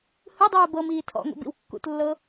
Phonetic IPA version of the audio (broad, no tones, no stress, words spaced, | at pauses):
hɯdˤɯː bɤ miːtʰɔ̰ŋʷḭ bḭwkːṵtlːɤ